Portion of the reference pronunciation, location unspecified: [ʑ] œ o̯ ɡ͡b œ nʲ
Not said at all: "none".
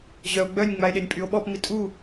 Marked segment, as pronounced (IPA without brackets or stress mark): ʑ